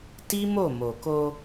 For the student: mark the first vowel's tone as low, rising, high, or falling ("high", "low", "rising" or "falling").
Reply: high